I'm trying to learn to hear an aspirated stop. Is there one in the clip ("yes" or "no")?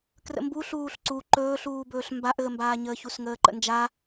no